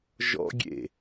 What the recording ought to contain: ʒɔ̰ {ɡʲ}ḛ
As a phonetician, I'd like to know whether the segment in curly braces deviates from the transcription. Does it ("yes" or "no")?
no